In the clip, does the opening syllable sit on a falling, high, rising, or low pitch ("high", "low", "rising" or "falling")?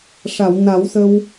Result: low